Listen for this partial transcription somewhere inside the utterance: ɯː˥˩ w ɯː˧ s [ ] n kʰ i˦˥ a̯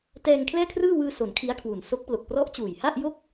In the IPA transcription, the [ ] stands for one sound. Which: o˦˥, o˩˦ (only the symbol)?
o˩˦